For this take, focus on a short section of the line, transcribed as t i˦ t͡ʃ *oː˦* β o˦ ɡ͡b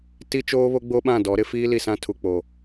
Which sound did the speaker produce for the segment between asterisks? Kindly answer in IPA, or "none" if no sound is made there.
oː˦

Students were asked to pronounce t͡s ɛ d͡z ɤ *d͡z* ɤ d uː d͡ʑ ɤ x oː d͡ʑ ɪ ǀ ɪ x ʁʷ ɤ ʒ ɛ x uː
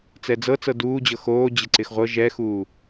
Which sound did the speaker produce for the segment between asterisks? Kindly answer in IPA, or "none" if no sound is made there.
t͡s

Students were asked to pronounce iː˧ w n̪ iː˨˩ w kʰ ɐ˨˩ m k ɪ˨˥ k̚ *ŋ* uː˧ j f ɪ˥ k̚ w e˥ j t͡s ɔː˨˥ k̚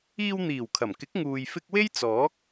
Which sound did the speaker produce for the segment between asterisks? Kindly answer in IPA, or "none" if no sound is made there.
ŋ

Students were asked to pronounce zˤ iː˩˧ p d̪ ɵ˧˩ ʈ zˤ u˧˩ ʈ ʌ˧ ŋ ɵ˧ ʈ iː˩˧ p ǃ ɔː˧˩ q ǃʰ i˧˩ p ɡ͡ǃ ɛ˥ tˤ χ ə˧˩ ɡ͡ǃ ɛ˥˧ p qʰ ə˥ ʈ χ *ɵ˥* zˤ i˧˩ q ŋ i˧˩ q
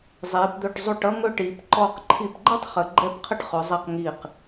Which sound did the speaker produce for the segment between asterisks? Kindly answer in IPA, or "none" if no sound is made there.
ɵ˩˧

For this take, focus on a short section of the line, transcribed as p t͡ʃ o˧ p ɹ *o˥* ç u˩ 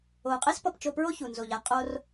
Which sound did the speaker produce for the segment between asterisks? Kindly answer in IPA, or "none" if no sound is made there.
o˥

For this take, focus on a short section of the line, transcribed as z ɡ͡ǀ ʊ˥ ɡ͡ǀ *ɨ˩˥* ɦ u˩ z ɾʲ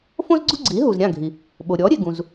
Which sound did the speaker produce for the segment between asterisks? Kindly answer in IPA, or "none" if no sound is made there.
i˩˥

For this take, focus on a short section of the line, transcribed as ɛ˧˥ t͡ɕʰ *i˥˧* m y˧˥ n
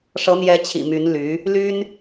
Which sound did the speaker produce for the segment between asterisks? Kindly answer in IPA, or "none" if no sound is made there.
ḭ˨˩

